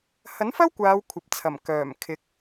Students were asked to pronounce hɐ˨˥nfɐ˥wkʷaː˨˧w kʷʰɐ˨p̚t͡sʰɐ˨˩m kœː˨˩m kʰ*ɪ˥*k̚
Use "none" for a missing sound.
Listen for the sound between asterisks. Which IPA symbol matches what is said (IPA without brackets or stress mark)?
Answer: ɪ˨˥